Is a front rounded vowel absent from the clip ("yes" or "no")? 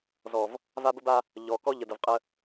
yes